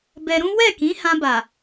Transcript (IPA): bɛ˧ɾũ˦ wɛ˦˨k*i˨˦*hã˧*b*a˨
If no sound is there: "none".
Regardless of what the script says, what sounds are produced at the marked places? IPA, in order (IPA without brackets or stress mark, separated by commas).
ĩ˨˦, b